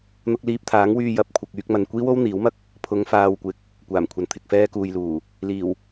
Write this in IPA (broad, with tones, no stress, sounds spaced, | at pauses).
n̪ ʊ˧ k̚ l iː˧ p̚ t̪ʰ aː˨˥ ŋ w yː˧ j ɐ˨ p̚ kʷʰ ɐ˨ k̚ yː˧ k̚ m ɐ˨ n kʷ iː˥ w o˥ w n̪ iː˨˥ w m ɐ˥ k̚ | pʰ ʊ˨˧ ŋ f aː˨ w kʷ ɪ˨˥ k̚ | kʷ aː˨˩ m kʷʰ ɐ˨ n t̪ʰ ɪ˨ k̚ f ɛː˥ k uː˧ j l uː˨˩ | l iː˨˩ w